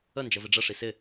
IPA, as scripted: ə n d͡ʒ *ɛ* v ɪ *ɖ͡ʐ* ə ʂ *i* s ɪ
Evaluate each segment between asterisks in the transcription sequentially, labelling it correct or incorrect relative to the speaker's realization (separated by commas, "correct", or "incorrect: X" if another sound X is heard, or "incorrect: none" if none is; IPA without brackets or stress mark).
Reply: incorrect: ə, correct, correct